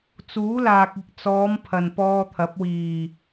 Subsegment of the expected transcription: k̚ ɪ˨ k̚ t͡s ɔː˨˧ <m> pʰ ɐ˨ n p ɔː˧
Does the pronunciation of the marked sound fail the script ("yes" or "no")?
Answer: no